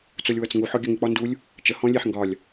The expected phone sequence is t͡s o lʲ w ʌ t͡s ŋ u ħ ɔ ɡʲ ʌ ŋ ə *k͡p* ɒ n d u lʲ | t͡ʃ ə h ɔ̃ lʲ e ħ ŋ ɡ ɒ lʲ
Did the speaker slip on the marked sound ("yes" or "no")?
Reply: no